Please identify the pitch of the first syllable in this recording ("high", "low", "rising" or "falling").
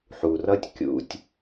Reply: low